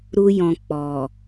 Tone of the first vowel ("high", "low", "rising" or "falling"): high